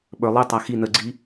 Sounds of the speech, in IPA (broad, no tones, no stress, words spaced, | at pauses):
ɓə˞ lˠitˤa xi nəɡ͡ǀi